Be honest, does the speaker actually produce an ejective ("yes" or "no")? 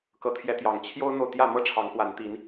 no